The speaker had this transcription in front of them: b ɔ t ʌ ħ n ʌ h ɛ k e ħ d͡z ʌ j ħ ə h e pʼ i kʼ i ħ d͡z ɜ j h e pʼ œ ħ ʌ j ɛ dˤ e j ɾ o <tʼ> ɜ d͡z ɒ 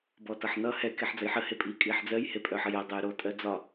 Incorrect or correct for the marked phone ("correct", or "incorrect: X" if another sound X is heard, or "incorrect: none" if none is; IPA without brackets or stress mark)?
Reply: correct